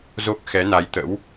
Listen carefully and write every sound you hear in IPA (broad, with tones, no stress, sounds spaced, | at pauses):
z o˦˥ k̚ x ɛ˨˦ n a˨˦ j t̪ ə̰˧˥ w